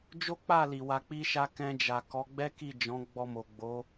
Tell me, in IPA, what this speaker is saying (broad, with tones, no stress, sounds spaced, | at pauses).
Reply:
d͡ʒ o˦ k͡p a˦˨ l i˨ w a˧ k͡p i˦ ʃ a˦ k ɛ̃˧ d͡ʒ a˨ k ɔ˨˦ ɡ͡b ɛ˦ k i˦˨ d͡ʒ ɔ̃˨˦ ɡ͡b ɔ˧ m o˨ ɡ͡b o˨˦